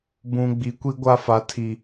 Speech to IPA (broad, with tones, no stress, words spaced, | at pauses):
bũ˨ ɡ͡bi˨˦kʷi˦ɡʷa˦fa˨ tʰi˨